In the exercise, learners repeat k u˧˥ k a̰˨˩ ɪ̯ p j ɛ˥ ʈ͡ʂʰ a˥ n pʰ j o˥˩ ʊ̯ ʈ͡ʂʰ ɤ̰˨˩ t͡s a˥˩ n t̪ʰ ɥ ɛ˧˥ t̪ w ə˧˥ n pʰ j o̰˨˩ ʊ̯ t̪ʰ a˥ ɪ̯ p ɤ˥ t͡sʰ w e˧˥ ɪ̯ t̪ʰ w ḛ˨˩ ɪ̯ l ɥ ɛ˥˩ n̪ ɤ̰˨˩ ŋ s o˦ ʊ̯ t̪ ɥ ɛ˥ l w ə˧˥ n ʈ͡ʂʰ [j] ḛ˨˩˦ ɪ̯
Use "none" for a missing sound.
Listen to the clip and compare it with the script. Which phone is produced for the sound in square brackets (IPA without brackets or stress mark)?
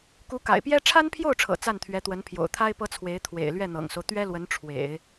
w